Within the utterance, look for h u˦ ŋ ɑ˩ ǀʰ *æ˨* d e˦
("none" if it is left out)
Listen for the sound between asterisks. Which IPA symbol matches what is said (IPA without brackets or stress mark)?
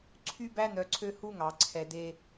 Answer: ɛ˨